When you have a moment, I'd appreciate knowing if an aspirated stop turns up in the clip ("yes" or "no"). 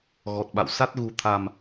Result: yes